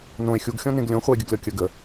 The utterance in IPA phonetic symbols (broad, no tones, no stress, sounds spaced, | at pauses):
n õ e̯ xʲ u ɡ xʲ ɔ̃ n ẽ ɡ lʲ õ χʷ ɛ e̯ ɡʲ ə ɡ lʲ ɔ kʲ ə ɡ ə